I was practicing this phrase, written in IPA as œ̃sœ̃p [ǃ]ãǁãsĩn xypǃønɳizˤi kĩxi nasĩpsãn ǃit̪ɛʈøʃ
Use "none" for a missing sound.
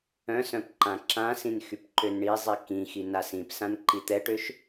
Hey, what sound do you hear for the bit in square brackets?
ǃ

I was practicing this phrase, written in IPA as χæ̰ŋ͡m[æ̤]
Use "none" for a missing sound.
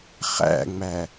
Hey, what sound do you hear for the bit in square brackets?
æ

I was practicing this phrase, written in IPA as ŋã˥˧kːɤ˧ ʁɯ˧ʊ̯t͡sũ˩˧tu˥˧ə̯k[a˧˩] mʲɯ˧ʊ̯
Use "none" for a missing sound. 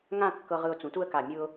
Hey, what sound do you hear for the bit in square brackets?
a˧˩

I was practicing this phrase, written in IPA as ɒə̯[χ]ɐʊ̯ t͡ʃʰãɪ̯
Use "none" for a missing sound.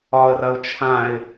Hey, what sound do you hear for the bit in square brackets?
r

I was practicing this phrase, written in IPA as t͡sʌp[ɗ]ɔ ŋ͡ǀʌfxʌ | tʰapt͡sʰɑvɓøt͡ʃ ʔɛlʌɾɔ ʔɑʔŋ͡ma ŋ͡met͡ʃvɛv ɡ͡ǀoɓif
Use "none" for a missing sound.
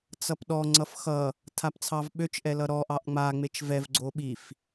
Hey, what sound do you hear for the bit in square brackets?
ɗ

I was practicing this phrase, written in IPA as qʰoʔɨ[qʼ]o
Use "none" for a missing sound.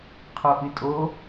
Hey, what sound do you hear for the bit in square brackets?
tʼ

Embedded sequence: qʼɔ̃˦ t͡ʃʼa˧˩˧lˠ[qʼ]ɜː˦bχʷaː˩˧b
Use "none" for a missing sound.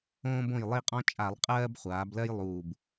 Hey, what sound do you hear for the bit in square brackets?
qʼ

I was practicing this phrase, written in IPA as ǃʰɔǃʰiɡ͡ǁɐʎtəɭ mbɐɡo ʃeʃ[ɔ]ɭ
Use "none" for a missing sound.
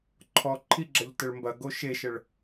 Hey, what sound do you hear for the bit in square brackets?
ə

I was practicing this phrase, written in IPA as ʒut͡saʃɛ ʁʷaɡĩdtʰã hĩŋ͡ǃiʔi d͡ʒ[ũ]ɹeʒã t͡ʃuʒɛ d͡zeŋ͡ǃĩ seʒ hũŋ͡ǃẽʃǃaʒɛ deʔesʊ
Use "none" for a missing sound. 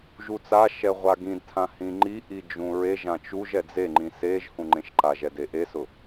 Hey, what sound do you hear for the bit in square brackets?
ũ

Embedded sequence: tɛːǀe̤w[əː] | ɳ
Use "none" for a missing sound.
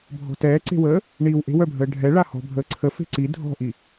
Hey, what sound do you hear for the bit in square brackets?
əː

